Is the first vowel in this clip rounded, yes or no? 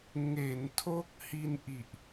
no